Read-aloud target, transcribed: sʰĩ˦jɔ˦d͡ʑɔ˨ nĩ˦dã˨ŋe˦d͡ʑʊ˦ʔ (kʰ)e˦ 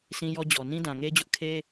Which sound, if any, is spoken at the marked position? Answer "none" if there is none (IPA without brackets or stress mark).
kʰ